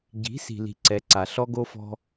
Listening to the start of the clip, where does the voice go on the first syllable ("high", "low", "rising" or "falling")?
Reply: rising